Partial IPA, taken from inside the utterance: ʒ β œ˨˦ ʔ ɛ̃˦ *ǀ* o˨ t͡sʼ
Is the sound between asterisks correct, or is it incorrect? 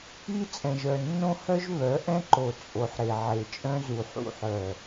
incorrect